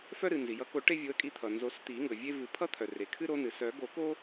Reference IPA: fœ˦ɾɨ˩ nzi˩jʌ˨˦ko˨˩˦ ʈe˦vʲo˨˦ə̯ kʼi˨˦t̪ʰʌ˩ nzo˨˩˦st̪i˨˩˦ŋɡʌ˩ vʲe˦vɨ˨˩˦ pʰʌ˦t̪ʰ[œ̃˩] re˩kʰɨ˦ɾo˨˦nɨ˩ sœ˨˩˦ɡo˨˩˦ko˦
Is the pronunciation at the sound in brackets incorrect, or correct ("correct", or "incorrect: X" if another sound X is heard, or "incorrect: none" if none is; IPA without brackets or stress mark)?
incorrect: œ˩